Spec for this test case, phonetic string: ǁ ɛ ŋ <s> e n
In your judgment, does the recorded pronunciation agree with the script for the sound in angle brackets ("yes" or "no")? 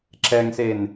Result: yes